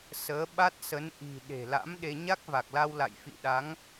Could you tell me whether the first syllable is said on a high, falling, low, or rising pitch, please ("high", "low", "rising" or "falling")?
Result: rising